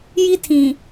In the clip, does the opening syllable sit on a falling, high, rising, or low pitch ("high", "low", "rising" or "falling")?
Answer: high